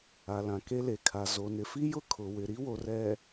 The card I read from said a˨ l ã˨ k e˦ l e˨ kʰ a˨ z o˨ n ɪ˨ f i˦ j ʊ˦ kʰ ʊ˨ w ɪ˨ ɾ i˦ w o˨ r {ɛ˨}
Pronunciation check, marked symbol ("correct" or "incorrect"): correct